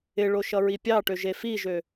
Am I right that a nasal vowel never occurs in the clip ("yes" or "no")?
yes